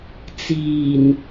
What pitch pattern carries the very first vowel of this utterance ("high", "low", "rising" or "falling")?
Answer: low